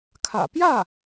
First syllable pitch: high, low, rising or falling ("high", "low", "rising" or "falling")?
low